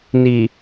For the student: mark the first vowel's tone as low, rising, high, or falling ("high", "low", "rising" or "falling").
low